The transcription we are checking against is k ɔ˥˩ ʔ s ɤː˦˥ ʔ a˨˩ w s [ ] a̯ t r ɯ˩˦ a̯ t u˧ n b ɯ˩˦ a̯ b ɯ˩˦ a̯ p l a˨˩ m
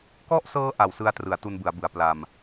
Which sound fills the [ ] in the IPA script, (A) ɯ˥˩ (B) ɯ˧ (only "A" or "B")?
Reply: B